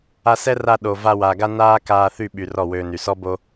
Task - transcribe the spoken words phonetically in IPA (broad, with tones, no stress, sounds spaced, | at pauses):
a˧ s ɛ˦ r a˧ ɗ o˨ v a˧ w a˨ ɡ a˦ n aː˦ k aː˧ θ y˦˨ ɓ y˨ r ɔ˦˨ w øː˧ n y˨ s ɔ˦ b o˦